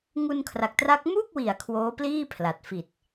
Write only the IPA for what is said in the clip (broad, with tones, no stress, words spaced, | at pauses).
ŋu˧nkʰra˨˩k̚tra˦˥k̚ mu˥˩k̚wi˩˦a̯ kʰwoː˦˥pliː˥˩ pʰla˨˩t̚ fi˨˩t̚